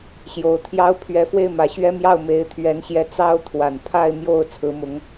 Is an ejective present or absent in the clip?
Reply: absent